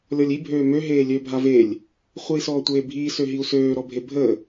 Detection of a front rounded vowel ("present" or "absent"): present